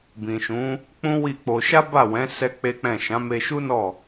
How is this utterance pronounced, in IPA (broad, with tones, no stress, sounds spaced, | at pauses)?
b ĩ˨ ʃ ũ˨˦ | k͡p ũ˦ w i˦˨ k͡p o˧ ʃ a˦ b a˦˨ w ɛ̃˨˦ s ɛ˦ k͡p e˦ k͡p ɛ̃˦˨ ʃ ã˨˦ m e˧ ʃ u˦ n ɔ˦˨